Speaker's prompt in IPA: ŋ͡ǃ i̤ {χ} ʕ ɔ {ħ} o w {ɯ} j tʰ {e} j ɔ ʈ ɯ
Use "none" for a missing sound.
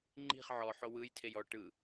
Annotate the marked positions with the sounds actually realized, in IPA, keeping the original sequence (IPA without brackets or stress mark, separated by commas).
χ, ħ, ɯ, e